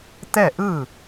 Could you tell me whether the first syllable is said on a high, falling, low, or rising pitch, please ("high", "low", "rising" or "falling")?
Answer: falling